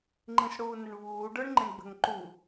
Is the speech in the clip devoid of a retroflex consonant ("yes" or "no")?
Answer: no